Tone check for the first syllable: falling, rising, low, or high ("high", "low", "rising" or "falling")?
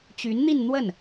rising